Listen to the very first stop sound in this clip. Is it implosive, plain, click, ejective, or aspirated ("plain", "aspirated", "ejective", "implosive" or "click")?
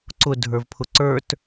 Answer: click